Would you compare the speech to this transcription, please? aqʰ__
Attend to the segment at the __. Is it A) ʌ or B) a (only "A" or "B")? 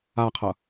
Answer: A